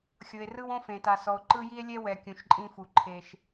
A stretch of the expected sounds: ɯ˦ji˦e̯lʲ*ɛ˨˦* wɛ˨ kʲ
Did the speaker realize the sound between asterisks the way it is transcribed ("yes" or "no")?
no